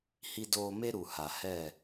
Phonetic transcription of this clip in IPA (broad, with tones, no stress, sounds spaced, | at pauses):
h i˧ d oː˧ m e˦ ɾ u˨ h a˨ h ɛ˦˨